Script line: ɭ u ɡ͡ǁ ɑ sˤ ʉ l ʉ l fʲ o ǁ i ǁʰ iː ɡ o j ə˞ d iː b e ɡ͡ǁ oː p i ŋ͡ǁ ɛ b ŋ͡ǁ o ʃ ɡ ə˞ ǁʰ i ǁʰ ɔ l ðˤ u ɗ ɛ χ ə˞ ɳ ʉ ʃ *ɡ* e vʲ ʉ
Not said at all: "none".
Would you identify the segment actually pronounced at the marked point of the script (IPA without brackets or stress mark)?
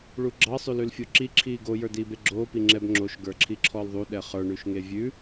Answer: ŋ